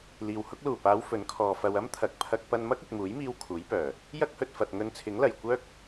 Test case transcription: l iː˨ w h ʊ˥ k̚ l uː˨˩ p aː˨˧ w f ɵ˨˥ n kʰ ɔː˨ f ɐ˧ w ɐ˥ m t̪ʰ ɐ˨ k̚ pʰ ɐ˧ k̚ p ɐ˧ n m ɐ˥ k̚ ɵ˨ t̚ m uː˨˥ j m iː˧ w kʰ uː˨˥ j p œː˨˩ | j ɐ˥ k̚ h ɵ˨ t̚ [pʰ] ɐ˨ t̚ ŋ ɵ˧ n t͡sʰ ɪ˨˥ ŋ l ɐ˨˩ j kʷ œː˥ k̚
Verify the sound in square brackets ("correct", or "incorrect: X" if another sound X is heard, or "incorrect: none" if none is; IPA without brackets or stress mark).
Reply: incorrect: f